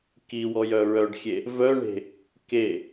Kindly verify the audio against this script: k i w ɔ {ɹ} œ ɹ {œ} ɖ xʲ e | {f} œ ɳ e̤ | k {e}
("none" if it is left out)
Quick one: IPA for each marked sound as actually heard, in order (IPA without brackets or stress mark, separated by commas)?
j, œ, v, e